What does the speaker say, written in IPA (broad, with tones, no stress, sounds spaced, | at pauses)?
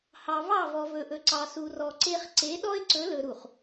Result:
h ɑ˨ v ɑ˦˨ v ɔ˨ v ɵ˨ ʔ ɵ˨ ǀ ɑ˨ s u˨ r ɔ˨ ǀ e˦ χ ǀ e˨˦ ɗ ɔ˦ ɪ̯ ǀ ɵ˨˦ l ɵ˨ ɾ u˨ χ